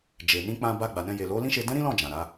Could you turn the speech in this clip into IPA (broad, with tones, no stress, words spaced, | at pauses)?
d͡ʒe˨ nĩ˧k͡pã˧ba˧ ɡ͡ba˨nɛ̃˧ je˨lo˨˦lĩ˦ʃe˧ dɛ̃˦ɾĩ˦lɔ̃˦˨ d͡ʒã˨ɾa˨˦